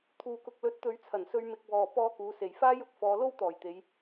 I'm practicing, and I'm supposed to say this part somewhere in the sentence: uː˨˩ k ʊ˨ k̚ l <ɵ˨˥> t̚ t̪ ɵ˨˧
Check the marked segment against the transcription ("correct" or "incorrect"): correct